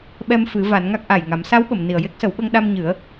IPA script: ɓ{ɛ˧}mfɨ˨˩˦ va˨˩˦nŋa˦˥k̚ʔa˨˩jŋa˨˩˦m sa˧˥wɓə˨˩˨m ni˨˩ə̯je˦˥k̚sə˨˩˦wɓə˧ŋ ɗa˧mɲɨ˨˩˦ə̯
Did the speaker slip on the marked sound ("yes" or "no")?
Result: no